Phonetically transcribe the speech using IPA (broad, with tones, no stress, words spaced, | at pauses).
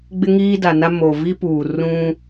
ɡ͡bɪ˦ŋiː˦da˨na˦ mo˨ vi˦puː˨ rũ˦